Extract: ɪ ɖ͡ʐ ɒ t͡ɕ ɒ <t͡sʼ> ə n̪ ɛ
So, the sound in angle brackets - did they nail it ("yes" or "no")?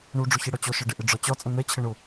yes